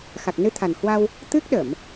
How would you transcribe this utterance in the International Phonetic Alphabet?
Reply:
x a˨˩ k̚ n ɨ˧ t̪ʰ a˨˩ n h w a˧ w | t̪ ɨ˦˥ k̚ ɗ ə˧˩˨ m

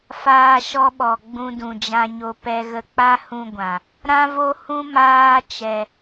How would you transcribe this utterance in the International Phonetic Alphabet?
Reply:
f aː˧ ʃ ɔ˧ ɓ ɔ˨ ɡ͡b ũ˧ d ũ˨ d͡ʒ ã˧ ɲ o˧ p ɛ˧ ɣ ə˧ k͡p a˦ h ũ˧ ɡʷ ã˨ | ɾ ã˦ v o˦ h ũ˦ m aː˦ t͡ʃ ɛ˧

